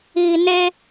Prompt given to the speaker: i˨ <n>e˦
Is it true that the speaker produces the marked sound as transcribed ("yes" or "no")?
yes